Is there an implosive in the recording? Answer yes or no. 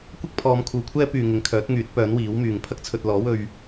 no